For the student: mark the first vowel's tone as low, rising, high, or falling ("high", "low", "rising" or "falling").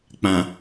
low